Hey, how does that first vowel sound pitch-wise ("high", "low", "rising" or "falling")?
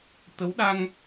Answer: rising